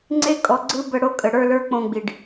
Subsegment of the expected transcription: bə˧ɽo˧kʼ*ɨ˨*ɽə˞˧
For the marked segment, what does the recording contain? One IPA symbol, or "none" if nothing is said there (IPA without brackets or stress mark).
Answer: ə˨